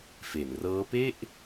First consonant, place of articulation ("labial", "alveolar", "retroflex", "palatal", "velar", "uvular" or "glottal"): labial